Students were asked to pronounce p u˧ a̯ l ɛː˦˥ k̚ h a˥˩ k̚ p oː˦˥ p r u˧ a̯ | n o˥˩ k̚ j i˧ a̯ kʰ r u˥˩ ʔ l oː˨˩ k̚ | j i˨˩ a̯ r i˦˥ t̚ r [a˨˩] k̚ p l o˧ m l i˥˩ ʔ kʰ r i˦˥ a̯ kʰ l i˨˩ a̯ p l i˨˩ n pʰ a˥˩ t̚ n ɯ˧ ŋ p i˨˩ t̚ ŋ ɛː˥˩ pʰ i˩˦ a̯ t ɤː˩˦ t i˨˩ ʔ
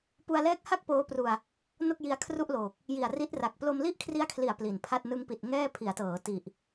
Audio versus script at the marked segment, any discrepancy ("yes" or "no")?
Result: no